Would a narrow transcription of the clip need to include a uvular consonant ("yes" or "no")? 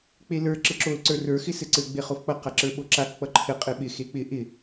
yes